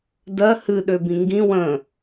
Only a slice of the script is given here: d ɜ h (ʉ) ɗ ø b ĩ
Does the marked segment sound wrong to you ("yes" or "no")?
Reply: yes